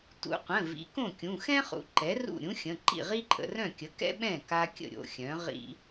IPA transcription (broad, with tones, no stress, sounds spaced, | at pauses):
t ṵ˩˧˩ qʷ ə̃˩˧˩ v ḭ˩˥ k õ˥˩ kʲ ũ˩˧˩ x ɛ̃˥ χ ṵ˩˥ ǃ ɛ˩˥ r ṵ˥˩ ɾʲ ũ˧˥ xʲ ə̃˩˧˩ ǃ ḭ˥˩ ʁ i˥ ǃʼ ə̰˧ r œ̃˥˩ kʲ ə˩˥ k ɛ̰˥ ɓ ɛ̃˥˩ k a˧ kʲ ə̰˥˩ ɾʲ o̰˩˧˩ xʲ œ̃˩˥ ʁ ḭ˧